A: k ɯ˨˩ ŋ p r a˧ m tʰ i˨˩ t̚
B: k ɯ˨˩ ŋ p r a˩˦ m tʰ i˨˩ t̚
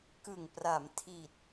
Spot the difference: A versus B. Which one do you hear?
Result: B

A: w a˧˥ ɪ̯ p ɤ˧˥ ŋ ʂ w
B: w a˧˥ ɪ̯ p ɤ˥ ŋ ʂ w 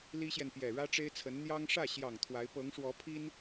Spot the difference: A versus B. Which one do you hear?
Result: A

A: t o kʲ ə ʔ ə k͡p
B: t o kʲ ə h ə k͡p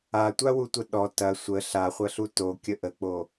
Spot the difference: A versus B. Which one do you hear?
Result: A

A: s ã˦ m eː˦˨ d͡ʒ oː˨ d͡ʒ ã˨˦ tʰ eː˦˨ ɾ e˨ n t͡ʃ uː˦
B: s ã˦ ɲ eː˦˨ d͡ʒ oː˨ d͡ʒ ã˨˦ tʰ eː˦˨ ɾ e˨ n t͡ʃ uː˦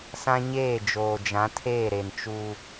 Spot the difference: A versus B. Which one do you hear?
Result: B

